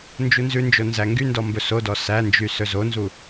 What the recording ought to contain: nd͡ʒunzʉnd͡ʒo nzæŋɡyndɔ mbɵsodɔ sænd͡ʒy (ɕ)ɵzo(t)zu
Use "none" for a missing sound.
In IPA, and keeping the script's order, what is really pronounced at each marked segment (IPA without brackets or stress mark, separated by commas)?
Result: s, n